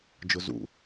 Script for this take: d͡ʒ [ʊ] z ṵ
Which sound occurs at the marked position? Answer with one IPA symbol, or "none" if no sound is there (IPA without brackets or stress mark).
ʊ